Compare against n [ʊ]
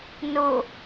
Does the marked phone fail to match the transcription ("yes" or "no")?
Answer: no